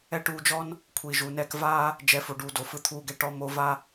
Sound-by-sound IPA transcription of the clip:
ɛ˦ʈuː˧d͡ʒɔ˦n | kʷʰi˨ ʒuː˨nɛː˧k vaː˦ | d͡ʒɛ˨˦fo˨ɖuː˨do˨ fɯ˧t̪ʰuː˧ɡɛ˧ ʈɔ˧mo˧ va˦

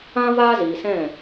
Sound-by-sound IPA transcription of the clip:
ã˦ vaː˦ziː˨sɛ̃˦˨

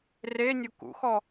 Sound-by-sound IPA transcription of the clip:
renʲu kṵxɔ

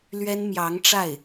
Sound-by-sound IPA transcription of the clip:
lɥɛ˥nmjɑ˧˥ŋʈ͡ʂa˥˩ɪ̯

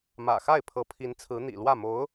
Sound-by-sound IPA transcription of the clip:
mä̰˨˩xa˥˩ɪ̯ pʰɤ˧˥pʰi˧˥nt͡sʰɹ̩˧˥ n̪ḭ˨˩lwä˥˩mo˧˥ʊ̯

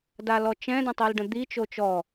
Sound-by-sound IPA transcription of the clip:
dalɔt͡ʃɛ̃də̃ tˤilɖə̃d̪i t͡ʃot͡ʃɔ

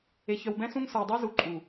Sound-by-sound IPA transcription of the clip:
e˨çœ˨wbɛ̃˦sũ˦ŋ sə˞˨dˤe˦zu˨ǃʼu˨

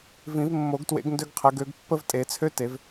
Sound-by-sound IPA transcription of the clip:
vĩ˨˩˦vmːo˨˩˦ɡtwḛ˨˦ɡ ndø˦ɡqʰə˨˦ɡø˨˦ɡ pːə˦vtʼe˨˩˦t͡sʰø˦te˨˩˦v

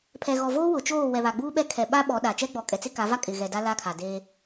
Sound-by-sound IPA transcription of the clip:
pʰɛ˨ɣɔ˨ voː˦ wʊ˨t͡ʃoː˦˨ wɛ˨βa˨ɡ͡buː˦ɓɛ˦ kʰɛ˨ɓa˦ ɓɔ˨˦ɗa˨ t͡ʃɛ˦ɡ͡bɔ˨kʼɛ˨ t͡sɪ˦ka˨˦va˦ kʼɪ˨ɣɛ˨da˦ la˦kʰa˨deː˦

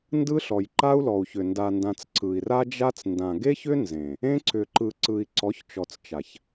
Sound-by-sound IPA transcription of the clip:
ndɯ˦ɬɔ˨j ǃa˦u̯lɔ˨u̯çʏ˨ nda˨ndã˨t͡s ǀɯ˨i̯ra˦d͡ʒa˦t͡s ndã˨ɡe˦çʏ˦ nzẽ˨ | ẽ˦ǀʏ˨ǃɯ˨ ǀɯ˨i̯ǀɔ˨˦çt͡ʃɔ˨t͡s t͡ʃa˨ç

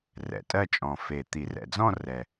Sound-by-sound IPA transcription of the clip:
rɛ̰˨˩˦tʼɜ˥˧ t͡ʃʼɔ̃˨˩fe˨˩ t̪i˨˩˦rɛ̰˨˩d͡zɔ̃˥˧rɛ˨˩

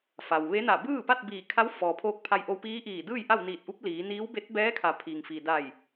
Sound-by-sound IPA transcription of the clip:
fa˩wʋe˧˥na˧˩ bɯː˥˨pa˥˨t̚biː˧˩ kʰa˧˥wfɔː˩pʰoː˧k̚ pʰa˧jʔo˧wpiː˧˥ ʔiː˧˩ dɯː˥˨jʔa˥˨w niː˧˩t̚ʔu˧˥p̚ liː˩˧ niː˧˥w be˧˥t̚bɛː˧˥kʰa˩˧ pʰi˩ŋfi˩da˧˩j

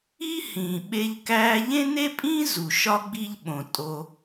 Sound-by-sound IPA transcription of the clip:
i˥hĩː˩ ɓe˦ʎkæː˥ ʎẽ˥ne˥pʼĩː˥ zu˩ʃɒ˥ɡ͡bi˦ʎɓõ˩ tʼo˨

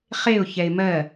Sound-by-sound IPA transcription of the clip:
χeʊ̯ çɛɪ̯mɜ

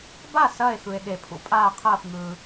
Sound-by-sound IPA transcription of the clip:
ba˥˨ sɐː˥˨e̯xɯ˩e̯ ɠe˩pʰṵ˩pʼaː˥˨qʰɐː˥˨f ŋɯː˩

